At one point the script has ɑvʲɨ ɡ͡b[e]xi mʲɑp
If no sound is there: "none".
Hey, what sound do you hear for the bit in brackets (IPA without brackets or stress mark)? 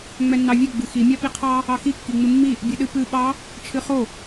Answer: ɨ